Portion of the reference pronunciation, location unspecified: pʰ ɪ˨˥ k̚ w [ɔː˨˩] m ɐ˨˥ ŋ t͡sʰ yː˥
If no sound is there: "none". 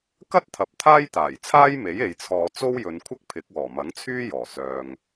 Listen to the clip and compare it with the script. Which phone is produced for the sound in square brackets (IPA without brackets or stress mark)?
ɔː˨˩